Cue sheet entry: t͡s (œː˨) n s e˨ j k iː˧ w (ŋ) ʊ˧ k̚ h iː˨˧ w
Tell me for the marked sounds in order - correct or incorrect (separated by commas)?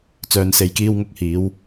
correct, correct